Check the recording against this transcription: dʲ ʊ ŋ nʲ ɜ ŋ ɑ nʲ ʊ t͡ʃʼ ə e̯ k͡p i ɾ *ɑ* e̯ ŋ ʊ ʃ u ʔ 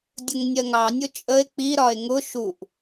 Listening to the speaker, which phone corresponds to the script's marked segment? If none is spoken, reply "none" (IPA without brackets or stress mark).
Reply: ɒ